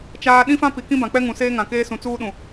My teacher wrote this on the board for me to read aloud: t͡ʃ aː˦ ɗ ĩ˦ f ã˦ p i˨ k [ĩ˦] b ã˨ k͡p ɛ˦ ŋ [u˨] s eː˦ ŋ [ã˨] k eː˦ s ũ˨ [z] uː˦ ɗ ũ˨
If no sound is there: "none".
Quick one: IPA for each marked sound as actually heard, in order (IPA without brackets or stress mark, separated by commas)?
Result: ĩ˦, ũ˨, ã˨, t͡s